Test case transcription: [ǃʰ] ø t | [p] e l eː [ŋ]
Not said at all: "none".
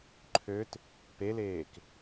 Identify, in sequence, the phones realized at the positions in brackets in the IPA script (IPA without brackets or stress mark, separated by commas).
ǃʰ, p, k